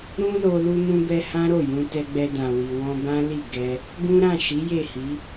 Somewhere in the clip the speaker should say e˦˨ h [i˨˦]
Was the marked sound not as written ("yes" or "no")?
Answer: no